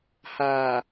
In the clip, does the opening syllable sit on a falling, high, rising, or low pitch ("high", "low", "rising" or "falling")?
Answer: low